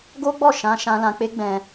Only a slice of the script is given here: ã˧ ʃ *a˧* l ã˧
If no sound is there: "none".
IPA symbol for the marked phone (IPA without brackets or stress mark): ã˧